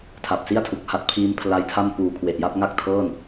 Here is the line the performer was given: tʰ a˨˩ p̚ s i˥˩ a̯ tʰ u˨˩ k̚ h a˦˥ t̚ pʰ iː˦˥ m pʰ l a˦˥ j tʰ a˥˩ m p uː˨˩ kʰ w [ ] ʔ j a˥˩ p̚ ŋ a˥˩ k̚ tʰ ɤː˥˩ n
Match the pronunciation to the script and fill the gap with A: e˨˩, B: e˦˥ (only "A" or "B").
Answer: A